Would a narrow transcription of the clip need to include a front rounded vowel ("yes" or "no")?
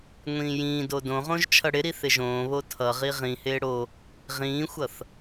no